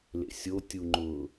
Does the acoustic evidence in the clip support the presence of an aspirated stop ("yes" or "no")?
no